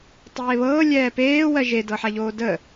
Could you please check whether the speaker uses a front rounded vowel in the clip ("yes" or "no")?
no